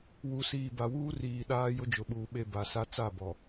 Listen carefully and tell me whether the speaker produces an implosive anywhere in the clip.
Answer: yes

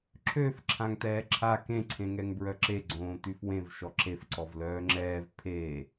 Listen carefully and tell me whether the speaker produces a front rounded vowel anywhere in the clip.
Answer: yes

